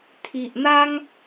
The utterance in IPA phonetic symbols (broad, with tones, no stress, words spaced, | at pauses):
t̪ʰi˨ʔn̪a˦ŋ